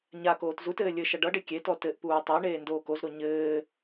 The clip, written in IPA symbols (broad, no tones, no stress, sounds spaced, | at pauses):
ɲ a k oː t z u t ɘː lʲ ɘ ʃ ʌ ɖ ʌ ɖ e kʲ e t ɔ t ɘ ʔ p uː tˤ e ɳ eː n d oː k o z ɾ o ɲ ɘː